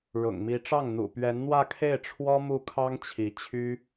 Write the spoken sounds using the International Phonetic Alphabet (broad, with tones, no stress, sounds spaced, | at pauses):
ɻ ʊ̰˨˩ ŋ m i˧˥ ʈ͡ʂ ɑ˥˩ ŋ n̪ ṵ˨˩ p ɥ ɛ˧˥ n n̪ w ä˥˧ kʰ e˥˩ ɪ̯ ʈ͡ʂʰ w ɔ˥ m u˥˩ kʰ ɑ˥ ŋ t͡ɕʰ i˧˥ t͡ɕʰ y˥